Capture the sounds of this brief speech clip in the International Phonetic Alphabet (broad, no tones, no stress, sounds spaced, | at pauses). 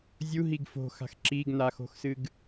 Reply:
zʲ u ɦ i ɡ f o̤ x a̤ x ǁ i ɡ n a x o̤ x s ɨ ɡ